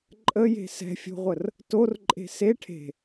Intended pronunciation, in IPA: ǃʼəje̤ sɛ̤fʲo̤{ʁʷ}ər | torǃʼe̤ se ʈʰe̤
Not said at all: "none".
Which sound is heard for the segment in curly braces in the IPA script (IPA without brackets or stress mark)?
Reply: ʁʷ